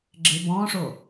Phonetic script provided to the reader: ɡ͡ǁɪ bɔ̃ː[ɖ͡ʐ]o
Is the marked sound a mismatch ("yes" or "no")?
yes